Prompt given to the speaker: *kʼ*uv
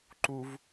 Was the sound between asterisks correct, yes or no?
no